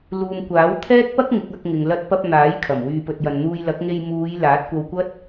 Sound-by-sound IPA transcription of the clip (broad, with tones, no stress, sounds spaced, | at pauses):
l uː˨ m kʷ aː˨˥ w t̪ʰ ɛː˥ k̚ p ɐ˥ k̚ ŋ ɪ˨˥ k̚ ɐ˨˥ k̚ ŋ ɪ˨ ŋ l ɐ˧ t̚ p ɐ˧ p̚ n̪ aː˨˥ j kʰ ɐ˨˩ m w yː˨ p ɵ˨ t̚ j ɐ˨ n n̪ uː˧ j l ɐ˨˥ k̚ ŋ e˧ j m uː˨˧ j l aː˨˥ t̚ kʷ ɐ˧ w kʷ ɐ˥ t̚